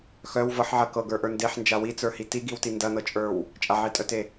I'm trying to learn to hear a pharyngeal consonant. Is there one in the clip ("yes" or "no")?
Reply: yes